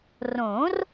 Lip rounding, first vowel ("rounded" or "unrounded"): rounded